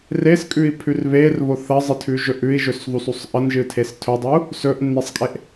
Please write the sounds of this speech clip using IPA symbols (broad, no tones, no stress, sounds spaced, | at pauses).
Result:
r e s kʼ ʉ i̯ pʰ ʉ r β e r β o θ ɐ zˤ ɨ tʰ ʉ ʒ ɵ ʔ ʉ i̯ ʒ ɵ s ðˤ u s u sˤ ʔ ɐ n ʒ ɨ tʰ e s tʰ ɵ dˤ ɵ u̯ | s ɵ ʔ nː e sˤ kʼ e ʔ